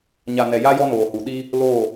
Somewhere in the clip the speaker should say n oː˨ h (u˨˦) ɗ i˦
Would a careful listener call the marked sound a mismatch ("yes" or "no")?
yes